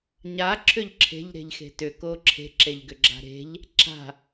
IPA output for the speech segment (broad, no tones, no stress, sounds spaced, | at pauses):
ɲ a ǁʰ ʏ ʎ ǁʰ e̤ ʎ ɾ e̤ ʎ x e̤ t ʏ k o ǁʰ e̤ ǁ e ʎ ɡ ʏ ɡ͡ǁ a̤ ɾ e̤ ʎ | ǁ a̤